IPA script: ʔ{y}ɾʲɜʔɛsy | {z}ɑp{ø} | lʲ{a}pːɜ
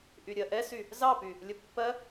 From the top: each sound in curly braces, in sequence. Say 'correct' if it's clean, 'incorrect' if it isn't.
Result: correct, correct, incorrect: y, incorrect: ə

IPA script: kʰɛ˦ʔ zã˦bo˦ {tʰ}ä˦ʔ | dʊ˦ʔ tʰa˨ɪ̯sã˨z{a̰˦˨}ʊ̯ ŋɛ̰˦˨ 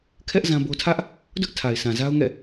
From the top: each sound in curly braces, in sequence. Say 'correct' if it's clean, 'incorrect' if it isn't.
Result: correct, incorrect: a˦

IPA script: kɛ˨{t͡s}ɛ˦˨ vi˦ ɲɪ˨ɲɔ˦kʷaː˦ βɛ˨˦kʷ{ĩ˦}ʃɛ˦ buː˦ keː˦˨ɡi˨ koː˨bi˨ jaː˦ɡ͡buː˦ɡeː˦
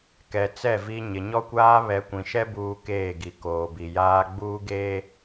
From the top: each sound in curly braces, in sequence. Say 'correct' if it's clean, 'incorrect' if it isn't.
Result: correct, incorrect: ĩ˨

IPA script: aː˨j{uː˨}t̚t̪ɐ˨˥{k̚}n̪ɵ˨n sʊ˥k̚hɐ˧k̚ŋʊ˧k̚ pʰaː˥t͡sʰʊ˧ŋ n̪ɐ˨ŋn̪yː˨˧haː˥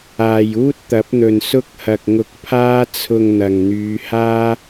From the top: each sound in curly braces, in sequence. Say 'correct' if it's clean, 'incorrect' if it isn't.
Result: incorrect: uː˥, incorrect: p̚

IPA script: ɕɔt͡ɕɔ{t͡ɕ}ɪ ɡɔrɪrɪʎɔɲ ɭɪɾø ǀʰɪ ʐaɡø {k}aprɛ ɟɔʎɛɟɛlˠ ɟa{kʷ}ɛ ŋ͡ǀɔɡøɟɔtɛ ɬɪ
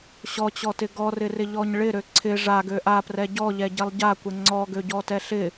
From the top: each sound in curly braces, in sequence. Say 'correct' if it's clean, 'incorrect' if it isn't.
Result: incorrect: t, incorrect: ʔ, correct

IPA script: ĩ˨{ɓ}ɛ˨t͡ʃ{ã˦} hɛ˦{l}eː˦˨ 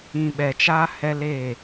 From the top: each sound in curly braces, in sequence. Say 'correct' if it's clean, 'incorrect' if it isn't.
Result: correct, incorrect: a˦, correct

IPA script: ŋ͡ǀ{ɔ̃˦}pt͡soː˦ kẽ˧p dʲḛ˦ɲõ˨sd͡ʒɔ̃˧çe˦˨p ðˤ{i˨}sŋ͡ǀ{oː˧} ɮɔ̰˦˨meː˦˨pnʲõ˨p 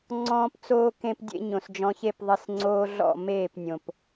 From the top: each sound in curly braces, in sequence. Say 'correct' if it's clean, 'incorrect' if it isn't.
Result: incorrect: ɔ̃ː˦, correct, correct

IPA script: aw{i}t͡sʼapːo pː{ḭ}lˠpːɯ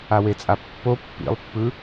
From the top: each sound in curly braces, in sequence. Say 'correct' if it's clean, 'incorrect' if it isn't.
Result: incorrect: e, correct

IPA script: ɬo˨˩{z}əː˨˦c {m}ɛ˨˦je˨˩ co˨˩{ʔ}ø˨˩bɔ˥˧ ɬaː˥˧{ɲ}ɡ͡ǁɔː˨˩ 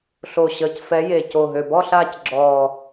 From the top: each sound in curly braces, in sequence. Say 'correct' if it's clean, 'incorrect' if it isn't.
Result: incorrect: ɕ, incorrect: f, incorrect: ɦ, incorrect: c

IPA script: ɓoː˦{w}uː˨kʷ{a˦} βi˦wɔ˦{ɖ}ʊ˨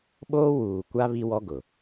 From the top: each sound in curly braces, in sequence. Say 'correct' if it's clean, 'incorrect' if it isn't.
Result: correct, correct, incorrect: ɡ

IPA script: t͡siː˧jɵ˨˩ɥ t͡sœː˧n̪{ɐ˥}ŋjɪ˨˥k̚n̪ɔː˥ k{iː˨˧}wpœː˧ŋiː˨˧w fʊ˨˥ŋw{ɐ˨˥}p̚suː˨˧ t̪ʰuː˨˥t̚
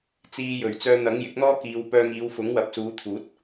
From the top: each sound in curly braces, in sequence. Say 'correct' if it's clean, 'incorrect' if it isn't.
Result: incorrect: ɐ˨˥, correct, correct

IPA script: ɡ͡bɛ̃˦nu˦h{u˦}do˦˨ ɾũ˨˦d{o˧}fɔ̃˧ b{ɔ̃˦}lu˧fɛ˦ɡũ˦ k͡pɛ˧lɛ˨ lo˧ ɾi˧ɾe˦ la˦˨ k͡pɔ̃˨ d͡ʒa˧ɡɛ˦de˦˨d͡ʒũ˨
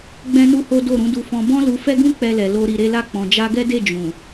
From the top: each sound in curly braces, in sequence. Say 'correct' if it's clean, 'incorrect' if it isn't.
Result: incorrect: o˦, incorrect: u˧, correct

